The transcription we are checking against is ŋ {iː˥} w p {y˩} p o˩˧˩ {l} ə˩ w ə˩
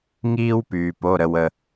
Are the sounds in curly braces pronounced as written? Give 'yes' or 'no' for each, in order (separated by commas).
yes, no, no